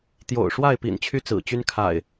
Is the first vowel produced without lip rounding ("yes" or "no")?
no